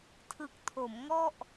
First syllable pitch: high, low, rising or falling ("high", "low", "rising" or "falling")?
low